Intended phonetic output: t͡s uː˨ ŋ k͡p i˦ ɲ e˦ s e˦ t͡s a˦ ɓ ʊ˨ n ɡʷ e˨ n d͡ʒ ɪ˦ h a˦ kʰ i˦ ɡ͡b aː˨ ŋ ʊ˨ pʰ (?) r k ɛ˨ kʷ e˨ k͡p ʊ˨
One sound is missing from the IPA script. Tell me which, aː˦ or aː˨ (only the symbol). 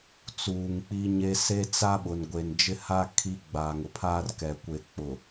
aː˦